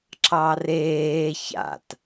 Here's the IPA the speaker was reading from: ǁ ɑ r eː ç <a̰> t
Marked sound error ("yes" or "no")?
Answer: no